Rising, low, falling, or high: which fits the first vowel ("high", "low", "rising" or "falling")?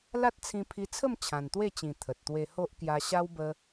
high